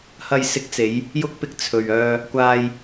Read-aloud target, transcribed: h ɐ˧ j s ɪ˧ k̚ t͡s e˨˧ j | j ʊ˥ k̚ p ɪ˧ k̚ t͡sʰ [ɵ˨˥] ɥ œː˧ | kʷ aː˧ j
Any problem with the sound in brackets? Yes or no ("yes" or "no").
yes